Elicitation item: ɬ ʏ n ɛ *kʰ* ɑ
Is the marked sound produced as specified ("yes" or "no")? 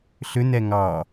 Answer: no